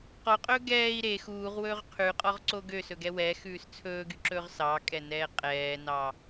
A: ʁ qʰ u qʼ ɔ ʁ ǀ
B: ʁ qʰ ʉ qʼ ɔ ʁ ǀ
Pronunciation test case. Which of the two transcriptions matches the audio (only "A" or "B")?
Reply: B